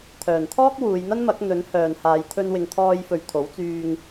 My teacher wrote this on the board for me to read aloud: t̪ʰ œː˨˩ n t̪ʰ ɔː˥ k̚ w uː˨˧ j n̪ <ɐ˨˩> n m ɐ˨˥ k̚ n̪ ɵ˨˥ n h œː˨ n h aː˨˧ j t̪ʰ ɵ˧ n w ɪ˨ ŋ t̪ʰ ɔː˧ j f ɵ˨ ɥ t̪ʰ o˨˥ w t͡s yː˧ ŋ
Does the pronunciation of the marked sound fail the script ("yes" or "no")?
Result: yes